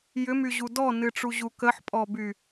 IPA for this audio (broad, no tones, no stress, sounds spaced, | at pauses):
j ʏ m y ʑ u d ɔ n ɨ ʈ͡ʂ u ʑ u k ə ħ pʼ ɔ b y